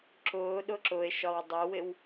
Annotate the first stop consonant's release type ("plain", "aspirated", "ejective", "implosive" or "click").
click